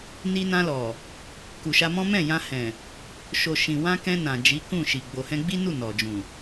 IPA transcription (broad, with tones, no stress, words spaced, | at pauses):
ni˧nã˧lɔ˨ | ku˨ʃa˧mɔ̃˦ mɛ̃˦˨jã˧hɛ̃˨ | ʃo˨ ʃĩ˨wã˧kɛ̃˧ nã˨ d͡ʒi˨˦kũ˦˨ʃi˨ ɡ͡bo˨hɛ̃˧ɡ͡bi˦nu˦˨ nɔ˨d͡ʒũ˨